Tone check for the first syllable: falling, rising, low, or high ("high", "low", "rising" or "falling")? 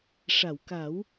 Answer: low